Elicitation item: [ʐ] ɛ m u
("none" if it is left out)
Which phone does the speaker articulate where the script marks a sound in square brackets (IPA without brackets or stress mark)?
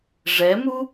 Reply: ʐ